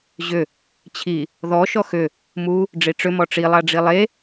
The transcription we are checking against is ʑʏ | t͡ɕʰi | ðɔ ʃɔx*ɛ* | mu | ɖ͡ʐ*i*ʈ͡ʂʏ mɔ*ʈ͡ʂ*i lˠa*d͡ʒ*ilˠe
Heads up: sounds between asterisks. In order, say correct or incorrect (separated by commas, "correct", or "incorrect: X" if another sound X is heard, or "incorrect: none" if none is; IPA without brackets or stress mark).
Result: incorrect: ʏ, correct, correct, incorrect: ɖ͡ʐ